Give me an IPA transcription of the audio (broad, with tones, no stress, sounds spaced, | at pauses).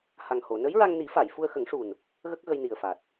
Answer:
h a˨˩ ŋ h o˨˩˨ n ə˧˥ j ɹ a˧ ŋ n i˨˩˦ f a˨˩˨ j f u˧ ə̯ x ə˨˩˦ ŋ ʂ u˨˩ n | ɣ ə˦˥ k̚ ɣ ə˧ j n i˨˩ ə̯ f a˨˩ t̚